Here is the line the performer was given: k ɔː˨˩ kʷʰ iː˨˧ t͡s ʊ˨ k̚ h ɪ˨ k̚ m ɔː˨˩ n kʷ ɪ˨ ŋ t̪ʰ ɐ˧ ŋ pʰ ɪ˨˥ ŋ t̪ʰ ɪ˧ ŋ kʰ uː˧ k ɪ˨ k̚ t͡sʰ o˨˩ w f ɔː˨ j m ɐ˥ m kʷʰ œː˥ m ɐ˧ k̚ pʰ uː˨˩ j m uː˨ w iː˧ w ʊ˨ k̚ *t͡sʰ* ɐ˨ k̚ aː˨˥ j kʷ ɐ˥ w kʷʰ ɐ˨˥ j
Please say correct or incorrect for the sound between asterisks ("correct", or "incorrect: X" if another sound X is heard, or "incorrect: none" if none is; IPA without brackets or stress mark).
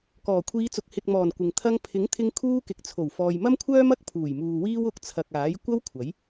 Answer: correct